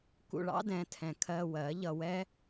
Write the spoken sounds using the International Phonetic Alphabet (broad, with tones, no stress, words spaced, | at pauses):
kṵ˧ɭɑ̰˦dɛ̃˨˦tʰɛ̃˨ kʰɜ˧wɜ˨˦ ʎʌ˧wɛ˦